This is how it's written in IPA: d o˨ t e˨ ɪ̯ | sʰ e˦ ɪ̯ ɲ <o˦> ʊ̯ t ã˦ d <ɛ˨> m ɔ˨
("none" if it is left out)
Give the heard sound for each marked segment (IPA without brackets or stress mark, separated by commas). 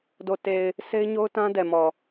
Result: o˦, ɛ˨